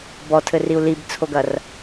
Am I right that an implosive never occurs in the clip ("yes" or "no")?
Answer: yes